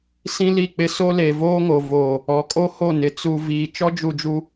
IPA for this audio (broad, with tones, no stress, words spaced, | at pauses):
sĩ˦li˦˨k͡pɪ˦ so˦le˨voː˦ŋo˨ voː˨ | ɔ˨˦kʼo˦ho˦˨nɪ˨ t͡su˨ viː˨ t͡ʃɔ˦d͡ʒu˨d͡ʒu˦